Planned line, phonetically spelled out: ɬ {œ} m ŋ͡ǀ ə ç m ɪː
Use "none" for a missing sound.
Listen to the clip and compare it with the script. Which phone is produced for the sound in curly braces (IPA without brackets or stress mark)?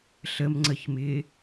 ə